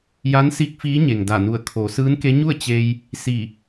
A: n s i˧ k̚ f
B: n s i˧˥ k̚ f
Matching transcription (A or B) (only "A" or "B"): B